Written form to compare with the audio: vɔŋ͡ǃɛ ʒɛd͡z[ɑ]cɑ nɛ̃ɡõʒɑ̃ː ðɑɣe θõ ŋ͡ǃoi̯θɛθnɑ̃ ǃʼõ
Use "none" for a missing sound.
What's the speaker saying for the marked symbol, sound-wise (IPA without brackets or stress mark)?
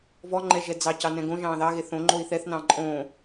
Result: ɑ